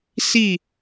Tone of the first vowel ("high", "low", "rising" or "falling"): falling